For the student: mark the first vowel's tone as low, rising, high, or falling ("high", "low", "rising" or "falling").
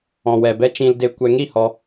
low